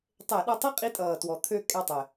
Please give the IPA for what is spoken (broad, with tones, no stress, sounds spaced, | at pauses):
tˤ e˧˩˧ ɗ ʌ˦˨ tˤ i˥ qʼ i˧˥ tʼ ʌː˨˩ t w ɔ˨˩ t̪ʰ ø˦˨ kʼ ɛ˦˨ tˤ ɪ˨˩